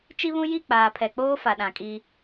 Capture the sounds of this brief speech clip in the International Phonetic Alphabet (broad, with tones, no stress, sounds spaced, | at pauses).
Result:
t͡ʃ i˦ β ũ˦ j i˦˨ k͡p aː˨ pʰ ɛ˨ k͡p oː˦ f a˨ ɗ ã˨ kʼ i˦